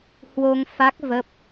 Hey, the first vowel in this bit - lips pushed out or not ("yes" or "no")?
yes